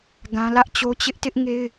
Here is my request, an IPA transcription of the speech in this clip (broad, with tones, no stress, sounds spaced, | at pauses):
ɡ ã˦ l ä˦ ʔ t͡ɕ o˦ t͡ɕ ɪ˦ ʔ t ɪ˦ ʔ ŋ e˦ ɪ̯